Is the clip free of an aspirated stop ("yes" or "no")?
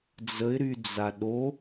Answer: yes